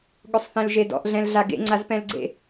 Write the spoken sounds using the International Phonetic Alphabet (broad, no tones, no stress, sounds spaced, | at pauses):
ɠ ʊ sˤ θ ɛ̃ l ʒ e d ɔ̰ ʔ ɮ ɛ̃ l ɮ a ɡ ḛ ŋ͡ǀ a z p ɛ̃ l ɡ͡ǀ ḛ